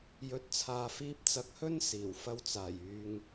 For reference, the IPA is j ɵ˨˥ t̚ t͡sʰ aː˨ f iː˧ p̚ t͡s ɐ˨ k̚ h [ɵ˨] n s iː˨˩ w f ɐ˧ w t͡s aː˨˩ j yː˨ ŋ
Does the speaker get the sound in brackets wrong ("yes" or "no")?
yes